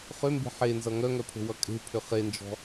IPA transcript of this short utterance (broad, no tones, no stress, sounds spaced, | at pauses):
χ ʏ m b e̤ ħ e n z ʌ ŋ œ ŋ œ pʰ o̤ w ʌ kʼ e̤ pʰ ʏ χ e n d͡ʒ ɔ̤